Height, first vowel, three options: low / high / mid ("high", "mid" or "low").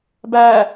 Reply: low